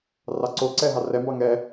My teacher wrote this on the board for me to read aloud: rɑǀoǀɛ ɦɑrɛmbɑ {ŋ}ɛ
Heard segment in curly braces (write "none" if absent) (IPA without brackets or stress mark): ŋ